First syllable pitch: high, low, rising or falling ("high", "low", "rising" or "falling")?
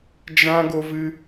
high